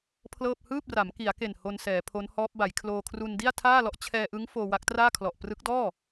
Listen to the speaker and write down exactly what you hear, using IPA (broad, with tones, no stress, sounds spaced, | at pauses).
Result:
pʰ l ɤː˥˩ p̚ h ɯː˥˩ p̚ r a˩˦ m k i˩˦ a̯ k e˨˩ n h o˧ n s ɛː˩˦ pʰ o˦˥ n h ɔː˦˥ p̚ b a˩˦ j kʰ l oː˧ kʰ r u˧ n d i˥˩ a̯ tʰ aː˥˩ l ɔ˦˥ ʔ t͡ɕʰ ɛː˧ ʔ ɯ˦˥ ŋ f oː˧ w a˦˥ k̚ t r aː˥˩ kʰ l ɔ˨˩ ʔ p r ɯ˦˥ k̚ d ɔː˥˩